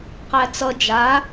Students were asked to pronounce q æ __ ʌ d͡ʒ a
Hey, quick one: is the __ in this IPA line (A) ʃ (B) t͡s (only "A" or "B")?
B